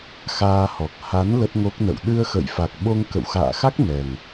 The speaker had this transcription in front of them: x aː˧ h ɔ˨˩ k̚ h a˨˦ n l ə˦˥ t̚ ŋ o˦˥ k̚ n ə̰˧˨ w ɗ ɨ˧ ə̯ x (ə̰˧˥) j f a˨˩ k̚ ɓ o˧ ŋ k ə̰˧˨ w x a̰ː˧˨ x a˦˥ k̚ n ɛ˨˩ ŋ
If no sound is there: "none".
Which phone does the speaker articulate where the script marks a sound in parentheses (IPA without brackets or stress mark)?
ə̰˧˨